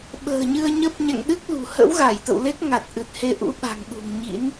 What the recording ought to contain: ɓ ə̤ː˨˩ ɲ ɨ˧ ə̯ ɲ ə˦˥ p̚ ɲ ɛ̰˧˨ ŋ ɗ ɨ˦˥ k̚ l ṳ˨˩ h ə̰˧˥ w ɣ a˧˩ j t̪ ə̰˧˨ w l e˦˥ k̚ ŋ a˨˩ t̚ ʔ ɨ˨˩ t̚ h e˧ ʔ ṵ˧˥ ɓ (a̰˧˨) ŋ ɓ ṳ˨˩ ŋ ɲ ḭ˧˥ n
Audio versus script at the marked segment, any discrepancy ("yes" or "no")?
yes